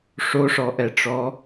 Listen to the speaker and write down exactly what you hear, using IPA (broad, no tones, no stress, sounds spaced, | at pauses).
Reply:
ʂ o ʂ ɔ ʔ ɛ ʈ͡ʂ ɔ